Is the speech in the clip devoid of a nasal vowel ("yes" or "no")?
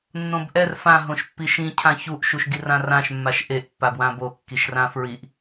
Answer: no